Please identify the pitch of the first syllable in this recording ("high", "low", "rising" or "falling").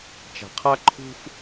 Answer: low